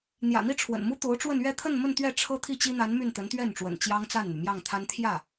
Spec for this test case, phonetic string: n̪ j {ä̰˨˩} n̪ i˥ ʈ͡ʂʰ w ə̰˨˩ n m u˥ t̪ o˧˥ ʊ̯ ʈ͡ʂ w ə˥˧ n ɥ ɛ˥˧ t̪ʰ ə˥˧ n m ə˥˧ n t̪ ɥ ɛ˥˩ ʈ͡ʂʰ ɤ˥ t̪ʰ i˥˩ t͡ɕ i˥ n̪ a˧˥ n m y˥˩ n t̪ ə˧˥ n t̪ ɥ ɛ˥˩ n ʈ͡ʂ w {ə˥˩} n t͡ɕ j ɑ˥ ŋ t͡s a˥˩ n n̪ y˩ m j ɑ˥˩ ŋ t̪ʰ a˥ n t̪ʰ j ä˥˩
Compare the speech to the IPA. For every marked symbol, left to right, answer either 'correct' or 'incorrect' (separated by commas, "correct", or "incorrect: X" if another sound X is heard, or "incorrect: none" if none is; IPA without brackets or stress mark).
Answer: correct, incorrect: ə̰˨˩